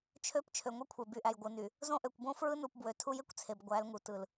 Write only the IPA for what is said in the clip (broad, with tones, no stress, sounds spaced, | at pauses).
t͡ʃʰ ø˦ p t͡ʃʰ ø˨ ŋʷ e˦ kʷʰ e˨ b y˨ ʔ æ˨ j ɡʷ ɯ˨ n y˨ | z õ˦ ʔ ø˨ kʷ b õ˦ f ɹ ɯ˦ n u˨ p b w ø˨ tʰ u˦ j e˦ kʷ t͡sʰ e˨ b ɡʷ æ˨˦ l ŋ u˨ t ɯ˨ l